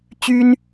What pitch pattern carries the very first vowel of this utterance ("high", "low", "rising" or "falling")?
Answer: high